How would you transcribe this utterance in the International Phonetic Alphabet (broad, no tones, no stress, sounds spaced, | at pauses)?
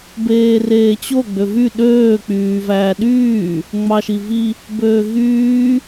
b eː r eː t͡ɕ o ɡ͡b ø v y ɗ øː k͡p yː v æː ɗ yː | ŋ͡m ɑ ʃ i v i | b øː ɣ yː